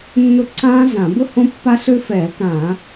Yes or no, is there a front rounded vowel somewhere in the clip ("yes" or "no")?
yes